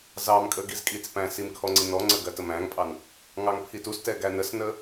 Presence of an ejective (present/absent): present